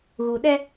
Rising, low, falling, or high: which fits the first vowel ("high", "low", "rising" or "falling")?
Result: low